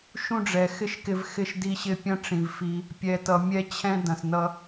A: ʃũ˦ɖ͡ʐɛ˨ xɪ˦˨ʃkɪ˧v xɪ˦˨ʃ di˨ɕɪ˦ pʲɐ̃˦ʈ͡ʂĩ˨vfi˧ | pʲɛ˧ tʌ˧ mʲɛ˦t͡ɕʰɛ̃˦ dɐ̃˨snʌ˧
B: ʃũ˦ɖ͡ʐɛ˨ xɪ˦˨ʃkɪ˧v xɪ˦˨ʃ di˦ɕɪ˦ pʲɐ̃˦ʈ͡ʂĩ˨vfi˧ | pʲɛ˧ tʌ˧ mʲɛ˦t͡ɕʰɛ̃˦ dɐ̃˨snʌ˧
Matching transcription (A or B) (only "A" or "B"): B